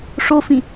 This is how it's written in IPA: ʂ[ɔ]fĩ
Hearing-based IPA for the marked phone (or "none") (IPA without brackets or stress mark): o